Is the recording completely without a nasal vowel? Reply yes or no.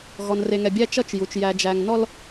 yes